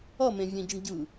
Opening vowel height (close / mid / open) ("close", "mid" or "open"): mid